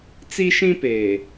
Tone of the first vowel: high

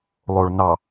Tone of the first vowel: low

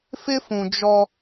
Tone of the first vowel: high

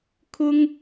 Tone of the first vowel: high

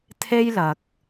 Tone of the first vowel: high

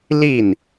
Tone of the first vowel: falling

